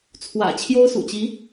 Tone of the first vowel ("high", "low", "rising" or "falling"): low